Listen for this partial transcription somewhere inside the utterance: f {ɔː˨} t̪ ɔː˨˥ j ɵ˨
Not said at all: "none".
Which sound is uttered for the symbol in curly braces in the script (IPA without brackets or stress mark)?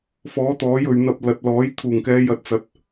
ɔː˨˥